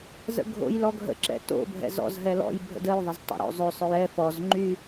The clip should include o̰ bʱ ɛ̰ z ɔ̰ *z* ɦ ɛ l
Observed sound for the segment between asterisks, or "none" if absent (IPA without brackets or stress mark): z